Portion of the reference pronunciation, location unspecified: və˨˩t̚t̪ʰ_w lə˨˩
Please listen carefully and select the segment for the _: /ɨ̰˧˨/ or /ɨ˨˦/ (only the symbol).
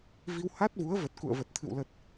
ɨ̰˧˨